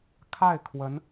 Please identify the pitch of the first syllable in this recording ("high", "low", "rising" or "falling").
falling